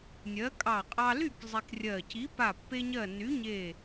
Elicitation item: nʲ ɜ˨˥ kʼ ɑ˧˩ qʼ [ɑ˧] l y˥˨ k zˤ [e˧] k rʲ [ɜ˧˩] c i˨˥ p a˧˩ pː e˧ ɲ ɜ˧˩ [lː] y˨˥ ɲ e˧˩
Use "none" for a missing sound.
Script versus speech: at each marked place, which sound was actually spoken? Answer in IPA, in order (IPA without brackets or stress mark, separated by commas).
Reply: ɑ˧, i˧, ɜ˧˩, n